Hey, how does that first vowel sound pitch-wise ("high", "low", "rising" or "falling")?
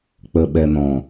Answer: low